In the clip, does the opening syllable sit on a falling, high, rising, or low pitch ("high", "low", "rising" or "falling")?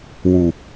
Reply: low